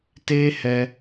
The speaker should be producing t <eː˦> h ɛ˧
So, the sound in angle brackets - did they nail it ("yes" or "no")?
yes